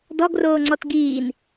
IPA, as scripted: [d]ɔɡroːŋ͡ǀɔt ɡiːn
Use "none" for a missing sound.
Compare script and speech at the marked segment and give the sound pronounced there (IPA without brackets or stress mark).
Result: d